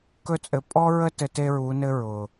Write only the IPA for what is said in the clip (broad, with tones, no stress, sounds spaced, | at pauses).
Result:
k ɵ˧ t͡sʼ ɘ˨ pʼ ɔ˦ ɹ ə˦ t ɘ˧ t e˦ ɹ u˨˦ n ɘ˦ ɹ ʊ˨